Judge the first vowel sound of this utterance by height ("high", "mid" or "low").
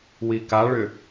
high